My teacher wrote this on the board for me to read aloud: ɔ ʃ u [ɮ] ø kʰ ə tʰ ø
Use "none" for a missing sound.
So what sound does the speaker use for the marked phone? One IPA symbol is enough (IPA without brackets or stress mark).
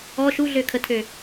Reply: ɮ